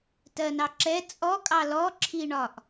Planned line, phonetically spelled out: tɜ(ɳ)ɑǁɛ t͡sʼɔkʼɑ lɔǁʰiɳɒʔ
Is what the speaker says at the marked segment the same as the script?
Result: no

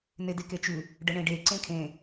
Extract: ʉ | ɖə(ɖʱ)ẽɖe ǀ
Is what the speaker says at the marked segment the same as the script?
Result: no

